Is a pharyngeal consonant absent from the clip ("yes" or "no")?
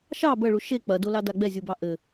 yes